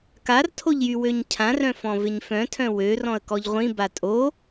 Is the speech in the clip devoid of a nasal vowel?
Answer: no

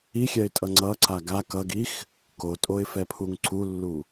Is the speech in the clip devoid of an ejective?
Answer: no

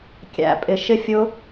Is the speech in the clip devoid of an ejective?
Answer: no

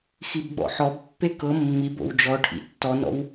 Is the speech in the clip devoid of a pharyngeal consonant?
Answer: no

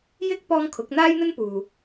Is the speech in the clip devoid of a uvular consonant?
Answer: yes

